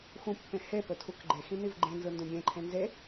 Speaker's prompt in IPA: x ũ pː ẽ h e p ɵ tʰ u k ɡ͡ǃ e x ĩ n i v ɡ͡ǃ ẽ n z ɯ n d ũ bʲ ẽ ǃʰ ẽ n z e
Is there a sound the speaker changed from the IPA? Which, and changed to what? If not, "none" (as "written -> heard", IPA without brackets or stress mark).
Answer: none